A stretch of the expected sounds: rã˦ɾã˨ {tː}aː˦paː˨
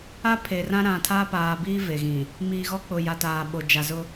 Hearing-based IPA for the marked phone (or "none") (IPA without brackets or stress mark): tʰ